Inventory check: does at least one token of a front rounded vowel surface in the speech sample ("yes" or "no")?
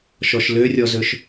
yes